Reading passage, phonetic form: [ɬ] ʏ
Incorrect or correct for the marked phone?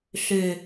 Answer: correct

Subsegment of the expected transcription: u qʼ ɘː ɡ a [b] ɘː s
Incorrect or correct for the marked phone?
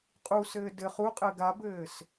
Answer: correct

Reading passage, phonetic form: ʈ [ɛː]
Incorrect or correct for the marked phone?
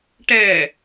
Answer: correct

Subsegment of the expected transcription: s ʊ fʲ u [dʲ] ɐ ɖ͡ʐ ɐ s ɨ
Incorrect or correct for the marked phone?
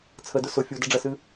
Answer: incorrect: d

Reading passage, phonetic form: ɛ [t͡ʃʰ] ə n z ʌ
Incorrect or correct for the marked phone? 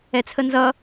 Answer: incorrect: t͡sʰ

